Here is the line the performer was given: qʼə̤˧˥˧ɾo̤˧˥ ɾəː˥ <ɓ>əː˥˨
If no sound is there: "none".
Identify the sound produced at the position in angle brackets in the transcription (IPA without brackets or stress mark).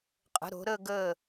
ɡ